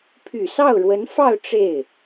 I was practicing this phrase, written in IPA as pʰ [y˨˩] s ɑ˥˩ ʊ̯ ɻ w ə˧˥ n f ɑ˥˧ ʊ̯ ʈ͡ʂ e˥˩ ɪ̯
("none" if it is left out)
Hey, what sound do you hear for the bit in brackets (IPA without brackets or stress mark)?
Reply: y˨˩